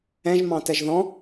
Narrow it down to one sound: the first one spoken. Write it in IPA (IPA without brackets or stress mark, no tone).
ɛ̃